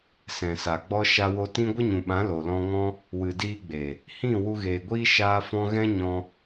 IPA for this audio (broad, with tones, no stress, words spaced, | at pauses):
sɛ̃˨sa˨ ɡ͡bɔ˧ ʃa˧wo˧tĩ˦ ɡʷə˦ɲũ˨ɓã˨˦ lo˨lɔ̃˧ ŋɔ̃˦ | wɨ˨diː˧ɡ͡be˨ | hĩ˦˨ wu˧ɣeː˨ɡʷiː˦ ʃaː˧fɔ̃˧ ɣɛ̃˦ɲɔ̃˧